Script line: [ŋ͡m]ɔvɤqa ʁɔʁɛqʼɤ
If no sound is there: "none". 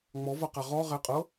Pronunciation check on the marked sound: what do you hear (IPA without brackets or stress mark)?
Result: ŋ͡m